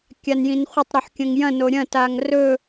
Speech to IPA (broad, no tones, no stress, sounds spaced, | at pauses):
kʲ a n j ĩ n χʷ ɐ tˤ ɾ o ħ kʲ ɐ̃ ŋ j ɐ̃ n o ɾʲ ɐ̃ t a ŋ r ɵ